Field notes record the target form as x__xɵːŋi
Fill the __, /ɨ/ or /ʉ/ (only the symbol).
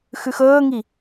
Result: ʉ